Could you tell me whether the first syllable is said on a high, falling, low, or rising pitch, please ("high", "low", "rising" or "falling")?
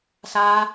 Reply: high